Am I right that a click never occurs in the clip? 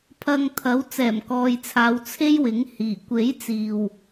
yes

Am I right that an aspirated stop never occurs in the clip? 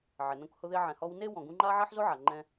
yes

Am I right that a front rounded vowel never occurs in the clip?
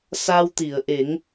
yes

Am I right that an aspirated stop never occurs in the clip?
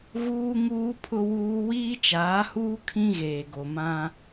no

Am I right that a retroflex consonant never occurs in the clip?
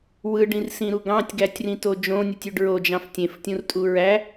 no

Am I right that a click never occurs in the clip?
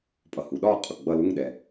yes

